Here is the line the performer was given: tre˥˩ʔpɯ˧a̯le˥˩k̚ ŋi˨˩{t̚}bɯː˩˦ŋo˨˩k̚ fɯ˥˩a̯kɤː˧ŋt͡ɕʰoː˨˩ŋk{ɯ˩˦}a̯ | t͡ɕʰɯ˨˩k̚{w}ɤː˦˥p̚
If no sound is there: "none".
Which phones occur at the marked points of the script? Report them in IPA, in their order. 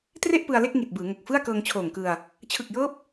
t̚, ɯ˧, j

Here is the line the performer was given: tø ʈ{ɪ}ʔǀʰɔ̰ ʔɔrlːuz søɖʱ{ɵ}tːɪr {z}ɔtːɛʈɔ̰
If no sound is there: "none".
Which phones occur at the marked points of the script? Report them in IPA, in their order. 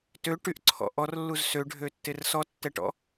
y, ø, s

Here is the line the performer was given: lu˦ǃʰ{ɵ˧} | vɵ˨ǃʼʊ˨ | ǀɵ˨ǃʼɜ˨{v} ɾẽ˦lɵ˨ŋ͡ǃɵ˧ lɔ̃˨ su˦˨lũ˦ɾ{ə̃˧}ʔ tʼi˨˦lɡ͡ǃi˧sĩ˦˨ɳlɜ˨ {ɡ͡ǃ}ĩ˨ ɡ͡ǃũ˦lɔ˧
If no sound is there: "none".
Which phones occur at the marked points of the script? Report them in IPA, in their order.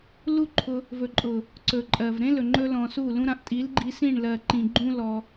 ʊ˧, v, ã˧, ǃ

